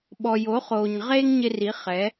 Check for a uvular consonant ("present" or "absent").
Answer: present